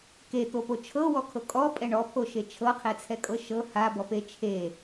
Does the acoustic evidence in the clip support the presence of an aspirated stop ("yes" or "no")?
yes